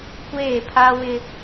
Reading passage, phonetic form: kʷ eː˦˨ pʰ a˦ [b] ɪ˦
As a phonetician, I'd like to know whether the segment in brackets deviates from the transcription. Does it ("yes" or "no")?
yes